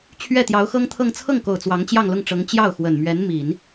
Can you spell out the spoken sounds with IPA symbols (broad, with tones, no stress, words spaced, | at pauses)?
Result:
t͡ɕʰɥɛ˥˩t̪jɑ˧˥ʊ̯xɤ˥ŋt̪ʰɤ˥˧ŋ t͡sʰɤ˥˩ŋko˨˩ʊ̯ t͡swɑ˧˥ŋt͡ɕjɑ˥˧ŋlʊ˥˩ŋʈ͡ʂɤ˧˥ŋ t͡ɕjɑ˥˩ʊ̯xwə˨˩n mɥɛ˧˥nmi˨˩˦n